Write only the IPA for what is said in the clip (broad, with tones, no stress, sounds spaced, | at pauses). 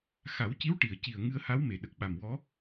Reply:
x a˨˩˦ w c i˧˥ w ʈ i˨˩˨ ə̯ c i˨˩ ə̯ ŋ ɨ˧ ə̯ h a˧˥ w m e˨˩˨ ɗ ə˨˩ k̚ ɓ a˨˩ m w ɔ˧˥